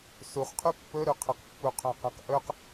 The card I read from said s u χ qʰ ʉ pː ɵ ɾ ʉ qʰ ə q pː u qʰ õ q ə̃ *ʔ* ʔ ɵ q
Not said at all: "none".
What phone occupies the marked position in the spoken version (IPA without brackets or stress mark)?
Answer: q